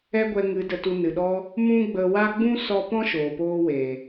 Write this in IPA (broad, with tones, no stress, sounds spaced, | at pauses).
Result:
ɛ˦ ɡʷ ɛ˧ ŋ ɨ˨˦ d ə˧ t u˧ n ɨ˨ ɗ ɔ˧ | m ũ˦ ɡ͡b ə˧ w a˦ ɡ͡b ũ˦ s ɔ˧ p ɔ̃˦ ʃ oː˨ p oː˧ w eː˨